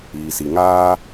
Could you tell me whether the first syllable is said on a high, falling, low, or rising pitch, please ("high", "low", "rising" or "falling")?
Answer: low